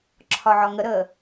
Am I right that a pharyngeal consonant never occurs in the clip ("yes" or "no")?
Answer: no